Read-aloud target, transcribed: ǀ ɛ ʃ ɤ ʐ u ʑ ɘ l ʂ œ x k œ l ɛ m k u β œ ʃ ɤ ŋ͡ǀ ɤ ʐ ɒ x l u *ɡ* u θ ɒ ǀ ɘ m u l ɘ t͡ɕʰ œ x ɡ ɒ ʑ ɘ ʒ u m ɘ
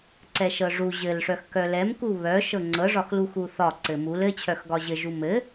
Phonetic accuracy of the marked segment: incorrect: x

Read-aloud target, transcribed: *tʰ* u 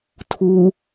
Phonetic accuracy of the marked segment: correct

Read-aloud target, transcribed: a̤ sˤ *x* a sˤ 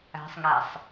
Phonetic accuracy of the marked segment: incorrect: ŋ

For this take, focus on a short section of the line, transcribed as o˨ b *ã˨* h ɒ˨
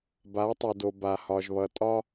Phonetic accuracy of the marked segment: incorrect: a˨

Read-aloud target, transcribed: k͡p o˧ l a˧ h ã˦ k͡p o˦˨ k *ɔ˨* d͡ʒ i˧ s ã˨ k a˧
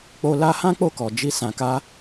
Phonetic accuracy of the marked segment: correct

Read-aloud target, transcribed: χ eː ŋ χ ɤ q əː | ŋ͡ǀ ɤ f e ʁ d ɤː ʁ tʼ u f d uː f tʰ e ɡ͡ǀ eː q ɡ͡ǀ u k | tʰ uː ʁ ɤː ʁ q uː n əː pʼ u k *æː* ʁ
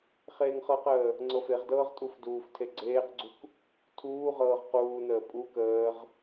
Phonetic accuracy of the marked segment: incorrect: əː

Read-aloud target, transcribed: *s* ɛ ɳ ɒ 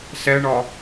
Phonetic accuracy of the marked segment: correct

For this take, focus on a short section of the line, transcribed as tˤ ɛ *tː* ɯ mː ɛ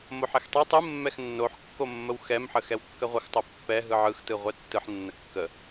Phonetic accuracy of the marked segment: incorrect: tˤ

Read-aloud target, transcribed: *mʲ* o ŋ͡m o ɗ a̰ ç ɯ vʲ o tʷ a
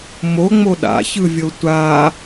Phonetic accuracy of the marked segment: incorrect: m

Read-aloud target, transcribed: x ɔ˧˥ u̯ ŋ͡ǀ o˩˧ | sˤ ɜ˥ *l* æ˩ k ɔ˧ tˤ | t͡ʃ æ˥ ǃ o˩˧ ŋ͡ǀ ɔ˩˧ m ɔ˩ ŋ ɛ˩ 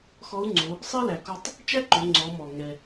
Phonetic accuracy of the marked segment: correct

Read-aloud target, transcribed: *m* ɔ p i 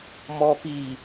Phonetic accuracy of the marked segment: correct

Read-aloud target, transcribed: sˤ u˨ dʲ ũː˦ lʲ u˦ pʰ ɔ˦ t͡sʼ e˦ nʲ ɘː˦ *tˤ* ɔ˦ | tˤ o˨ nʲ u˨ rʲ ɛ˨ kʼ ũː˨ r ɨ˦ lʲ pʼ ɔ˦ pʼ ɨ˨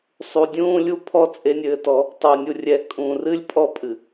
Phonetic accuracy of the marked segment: incorrect: t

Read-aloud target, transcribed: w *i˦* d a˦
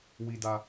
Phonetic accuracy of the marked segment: correct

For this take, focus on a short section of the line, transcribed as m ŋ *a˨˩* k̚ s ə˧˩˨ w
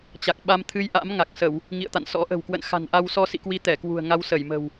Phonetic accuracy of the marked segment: correct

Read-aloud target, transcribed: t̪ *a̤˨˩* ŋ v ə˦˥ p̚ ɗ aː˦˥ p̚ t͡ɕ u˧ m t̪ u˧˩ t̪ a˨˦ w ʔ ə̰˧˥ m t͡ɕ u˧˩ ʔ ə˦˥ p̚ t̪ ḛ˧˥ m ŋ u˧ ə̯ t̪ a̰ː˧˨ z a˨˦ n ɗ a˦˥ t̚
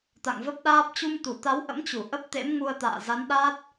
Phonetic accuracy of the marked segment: incorrect: a̰˧˨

